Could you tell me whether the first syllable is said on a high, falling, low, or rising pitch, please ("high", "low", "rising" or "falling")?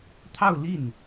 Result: falling